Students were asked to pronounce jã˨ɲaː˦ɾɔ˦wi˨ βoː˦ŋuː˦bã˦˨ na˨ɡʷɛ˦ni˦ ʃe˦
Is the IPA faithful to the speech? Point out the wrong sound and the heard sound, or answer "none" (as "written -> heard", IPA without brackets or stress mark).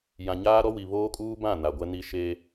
ŋ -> kʼ